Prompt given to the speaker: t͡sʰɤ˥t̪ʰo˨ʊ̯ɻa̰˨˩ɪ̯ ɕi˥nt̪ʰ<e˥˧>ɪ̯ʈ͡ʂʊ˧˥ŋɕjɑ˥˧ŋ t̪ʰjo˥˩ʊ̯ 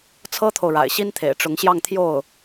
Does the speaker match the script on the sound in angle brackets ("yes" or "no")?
no